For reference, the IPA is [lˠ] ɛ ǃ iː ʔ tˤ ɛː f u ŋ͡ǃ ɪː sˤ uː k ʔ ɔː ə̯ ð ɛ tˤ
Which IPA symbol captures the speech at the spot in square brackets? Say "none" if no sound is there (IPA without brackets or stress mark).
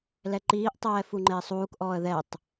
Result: l